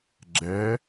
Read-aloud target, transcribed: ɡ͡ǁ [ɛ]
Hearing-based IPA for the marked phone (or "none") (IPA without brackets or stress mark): ɛ